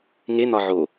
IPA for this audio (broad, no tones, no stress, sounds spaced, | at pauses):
ŋ e n̪ ɒ ʕ o